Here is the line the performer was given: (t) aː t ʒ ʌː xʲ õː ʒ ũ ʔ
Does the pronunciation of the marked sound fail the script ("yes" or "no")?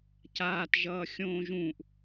yes